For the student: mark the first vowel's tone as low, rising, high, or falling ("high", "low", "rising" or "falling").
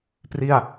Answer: falling